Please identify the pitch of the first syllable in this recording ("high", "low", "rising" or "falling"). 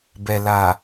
low